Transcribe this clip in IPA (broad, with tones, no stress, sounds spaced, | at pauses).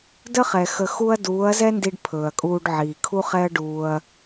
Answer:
d ə˦ χ ɛ˨ x ə˧ x u˦ ɐ̯ d uː˨˦ ɐ̯ z ɛ˦ n d i˧ ɖ pʰ ɵː˨ ɐ̯ kʼ uː˧ ɖ ʕ iː˨ kʰ u˦ χ ɛ˦ ɐ̯ ɖ uː˧ ɐ̯